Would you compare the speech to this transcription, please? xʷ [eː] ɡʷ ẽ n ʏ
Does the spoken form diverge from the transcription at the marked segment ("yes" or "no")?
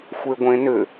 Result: yes